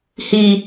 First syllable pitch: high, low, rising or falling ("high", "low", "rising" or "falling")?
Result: low